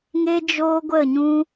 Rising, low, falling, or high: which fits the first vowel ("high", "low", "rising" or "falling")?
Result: high